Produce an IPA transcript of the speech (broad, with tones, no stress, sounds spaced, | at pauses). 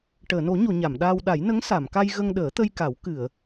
ʈ əː˨˩˨ n o˨˩˦ ɲ o˨˩˨ ɲ a˨˩˨ m ɗ aː˧ w ɗ a˨˩˦ j n ə˧˥ ŋ s a˨˩˨ m k a˧ j ɣ ə˧ ŋ ɗ əː˨˩˦ t̪ ə˧ j k a˨˩˦ w k ɨ˨˩˨ ə̯